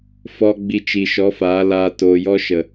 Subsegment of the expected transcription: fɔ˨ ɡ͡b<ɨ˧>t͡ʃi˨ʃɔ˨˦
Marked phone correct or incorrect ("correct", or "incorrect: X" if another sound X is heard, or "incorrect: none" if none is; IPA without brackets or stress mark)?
incorrect: i˧